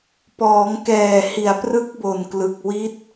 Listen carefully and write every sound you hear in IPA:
p ɔː˩˦ ŋ k ɛː˨˩ h i˩˦ a̯ p r ɯ˦˥ k̚ b o˨˩ n k l ɯ˨˩ k̚ w i˦˥ t̚

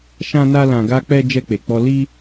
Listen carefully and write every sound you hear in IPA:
ʃ ã˧ n a˧ l ã˨ ɡ a˧ k͡p ɛ˧ d͡ʒ ɛ˧ k͡p e˨ k͡p ɔ˧ l i˧

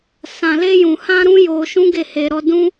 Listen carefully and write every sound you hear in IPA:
s ã˨ l e˧ j ũ˨ h ã˧ ɾ ũ˦ j o˧ ʃ ũ˦ ɡ e˦˨ h e˧ ɾ ɔ˦ d ũ˦

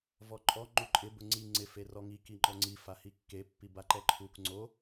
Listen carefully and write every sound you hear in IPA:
v ɔ ǃʼ ɔ ŋ͡ǃ u ǃʼ ɪ b ʊ ŋ͡ǀ i ŋ͡ǀ ɪ f e r ɔ ŋ i k i ŋ͡ǃ ɔ ŋ͡ǀ i f a h i kː e pː i b a ǃ ɛ ǃʰ u k ŋ͡ǀ o

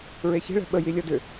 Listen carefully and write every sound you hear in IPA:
ɹ e ç e̤ ɭ ɛ̤ ɓ ə j i lʲ ɔ d ʏ

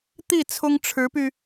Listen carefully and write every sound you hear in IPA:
t̪ i˥˩ t͡sʰ ʊ˥ ŋ ʈ͡ʂʰ ɻ̩˧˥ p y˧

